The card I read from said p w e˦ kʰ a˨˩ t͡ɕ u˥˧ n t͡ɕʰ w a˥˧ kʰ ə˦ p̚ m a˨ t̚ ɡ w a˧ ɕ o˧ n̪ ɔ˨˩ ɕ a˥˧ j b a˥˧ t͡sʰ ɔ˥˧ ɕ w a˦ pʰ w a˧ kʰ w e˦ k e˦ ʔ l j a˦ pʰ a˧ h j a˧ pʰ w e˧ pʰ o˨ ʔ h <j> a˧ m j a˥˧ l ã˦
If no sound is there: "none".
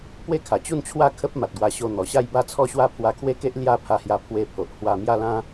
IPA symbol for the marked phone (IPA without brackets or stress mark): w